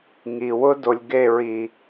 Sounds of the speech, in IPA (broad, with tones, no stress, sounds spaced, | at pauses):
ŋ i˨ w ʊ˦ d o˨ lʲ ɡ e˦˨ ɹ i˨